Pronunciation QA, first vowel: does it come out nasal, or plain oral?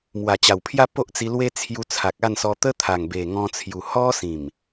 oral